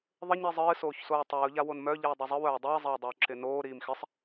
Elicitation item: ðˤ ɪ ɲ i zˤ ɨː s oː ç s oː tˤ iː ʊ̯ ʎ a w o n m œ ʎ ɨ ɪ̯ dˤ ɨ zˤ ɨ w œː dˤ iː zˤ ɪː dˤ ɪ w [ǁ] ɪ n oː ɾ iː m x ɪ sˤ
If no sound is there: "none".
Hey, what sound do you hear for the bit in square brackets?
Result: ǁ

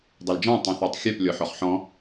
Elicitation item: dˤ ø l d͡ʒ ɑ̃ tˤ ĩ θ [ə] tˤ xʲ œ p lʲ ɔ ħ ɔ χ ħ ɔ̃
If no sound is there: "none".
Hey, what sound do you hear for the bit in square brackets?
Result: ɑ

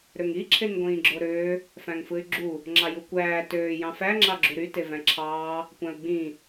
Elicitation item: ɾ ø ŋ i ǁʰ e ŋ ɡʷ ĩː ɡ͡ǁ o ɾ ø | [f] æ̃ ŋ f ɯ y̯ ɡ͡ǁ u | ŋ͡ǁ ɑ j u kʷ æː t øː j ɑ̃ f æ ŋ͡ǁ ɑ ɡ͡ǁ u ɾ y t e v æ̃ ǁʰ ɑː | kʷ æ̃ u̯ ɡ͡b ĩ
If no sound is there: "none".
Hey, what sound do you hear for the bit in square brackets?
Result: f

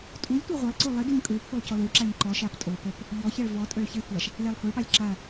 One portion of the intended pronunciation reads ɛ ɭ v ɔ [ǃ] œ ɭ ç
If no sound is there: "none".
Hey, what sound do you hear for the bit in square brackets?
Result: tʼ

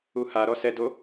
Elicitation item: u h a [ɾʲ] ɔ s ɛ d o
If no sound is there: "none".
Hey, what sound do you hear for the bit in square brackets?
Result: ɾ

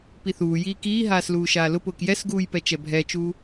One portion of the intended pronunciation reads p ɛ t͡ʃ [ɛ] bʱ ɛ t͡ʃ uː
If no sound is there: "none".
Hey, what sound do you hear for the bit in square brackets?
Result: ɛ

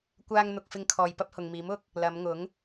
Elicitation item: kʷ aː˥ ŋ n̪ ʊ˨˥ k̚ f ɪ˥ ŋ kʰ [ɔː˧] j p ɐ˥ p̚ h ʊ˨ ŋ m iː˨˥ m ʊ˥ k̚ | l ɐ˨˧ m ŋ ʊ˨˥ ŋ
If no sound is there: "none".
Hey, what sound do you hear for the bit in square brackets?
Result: ɔː˧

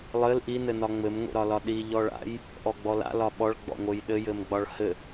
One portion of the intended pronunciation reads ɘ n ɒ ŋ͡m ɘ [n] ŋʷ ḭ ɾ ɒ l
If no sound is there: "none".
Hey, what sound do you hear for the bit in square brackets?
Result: m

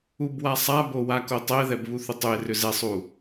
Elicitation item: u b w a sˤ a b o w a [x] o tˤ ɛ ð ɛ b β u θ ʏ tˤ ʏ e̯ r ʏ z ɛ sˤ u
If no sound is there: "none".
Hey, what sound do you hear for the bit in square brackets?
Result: k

